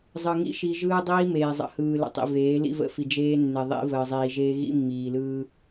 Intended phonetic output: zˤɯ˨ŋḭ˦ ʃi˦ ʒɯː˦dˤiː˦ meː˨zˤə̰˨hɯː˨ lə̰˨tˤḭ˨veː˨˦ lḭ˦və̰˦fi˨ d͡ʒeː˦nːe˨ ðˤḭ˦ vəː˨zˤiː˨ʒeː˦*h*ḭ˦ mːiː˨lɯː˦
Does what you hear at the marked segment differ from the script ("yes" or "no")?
yes